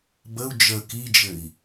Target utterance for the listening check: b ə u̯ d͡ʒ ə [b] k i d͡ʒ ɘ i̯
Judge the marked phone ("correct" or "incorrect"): incorrect